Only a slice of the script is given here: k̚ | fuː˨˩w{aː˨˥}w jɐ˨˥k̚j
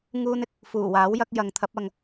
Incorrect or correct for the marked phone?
correct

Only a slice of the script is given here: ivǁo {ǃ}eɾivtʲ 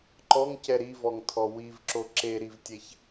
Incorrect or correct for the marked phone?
incorrect: ǁ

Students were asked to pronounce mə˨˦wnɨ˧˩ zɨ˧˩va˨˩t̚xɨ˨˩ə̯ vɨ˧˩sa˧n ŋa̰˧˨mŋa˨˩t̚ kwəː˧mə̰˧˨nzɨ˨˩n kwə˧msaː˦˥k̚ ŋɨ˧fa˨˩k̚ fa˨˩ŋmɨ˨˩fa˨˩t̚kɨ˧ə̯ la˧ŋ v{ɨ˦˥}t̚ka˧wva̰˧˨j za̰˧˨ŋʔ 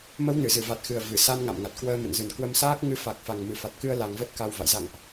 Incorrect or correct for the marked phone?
incorrect: ə˦˥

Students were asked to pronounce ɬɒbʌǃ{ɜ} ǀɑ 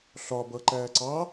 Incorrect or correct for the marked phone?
incorrect: æ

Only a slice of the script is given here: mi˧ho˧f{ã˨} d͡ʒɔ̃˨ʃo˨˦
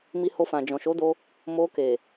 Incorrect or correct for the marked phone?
correct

